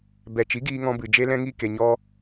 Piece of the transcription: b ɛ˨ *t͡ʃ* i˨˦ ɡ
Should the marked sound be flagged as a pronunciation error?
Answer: no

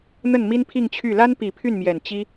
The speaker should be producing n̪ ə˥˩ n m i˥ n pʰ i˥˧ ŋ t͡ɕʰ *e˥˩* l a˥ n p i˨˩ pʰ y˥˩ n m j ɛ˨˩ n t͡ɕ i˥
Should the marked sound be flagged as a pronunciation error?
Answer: yes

